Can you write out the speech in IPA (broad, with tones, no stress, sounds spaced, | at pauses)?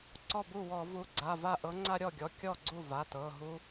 ǀ ɔ˥˩ b u˥˩ w ɔ˧˩˧ v u˨˥ ɡ͡ǀ a˩˧˩ v a˥˩ ʔ ɤ˨˥ ŋ͡ǀ a˦ ɾʲ ɔ˥˩ ɡʲ ɔ˩˧˩ kʲ ɔ˥˩ ɡ͡ǀ u˥˩ v a˩˧˩ t ɤ˩˧˩ ɦ u˦